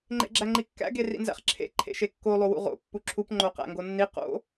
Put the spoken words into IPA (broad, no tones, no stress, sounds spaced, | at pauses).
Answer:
ŋ͡ǃ ḛ ɡ͡ǁ æ ŋ͡ǃ i kː æ̰ ɡ e r ḭ n z æ̰ χ ǁʰ ḛ ǃʰ ḛ ʃ e kː o lˠ o w ṵ ʁ o̰ pː u ǁʰ u p ŋ͡ǃ o q æ̰ ŋ ɡ o nː i q o̰